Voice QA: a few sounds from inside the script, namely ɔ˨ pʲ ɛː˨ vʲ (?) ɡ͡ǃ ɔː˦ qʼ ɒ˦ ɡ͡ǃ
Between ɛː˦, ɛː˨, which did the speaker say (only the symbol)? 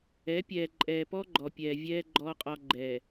ɛː˦